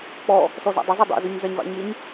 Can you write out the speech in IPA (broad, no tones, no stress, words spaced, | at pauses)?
k͡pɔ | sɔzɑ̰dˤɪzˤɵ dˤḛzøɲ zaɲvɑ̰ɲɪɲ